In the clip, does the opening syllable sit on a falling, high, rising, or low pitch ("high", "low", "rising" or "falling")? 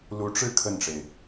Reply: rising